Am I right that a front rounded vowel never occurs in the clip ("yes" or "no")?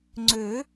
no